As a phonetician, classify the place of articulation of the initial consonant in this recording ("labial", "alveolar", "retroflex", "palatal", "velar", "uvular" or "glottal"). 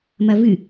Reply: labial